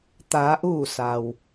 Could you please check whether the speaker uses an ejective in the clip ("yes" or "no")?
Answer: no